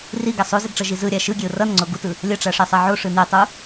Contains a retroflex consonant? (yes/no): yes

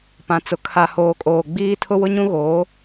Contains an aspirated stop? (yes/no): yes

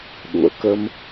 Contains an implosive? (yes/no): yes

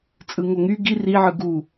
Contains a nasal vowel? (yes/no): no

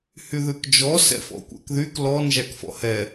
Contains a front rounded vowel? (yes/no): yes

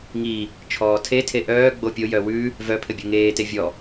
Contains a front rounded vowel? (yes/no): yes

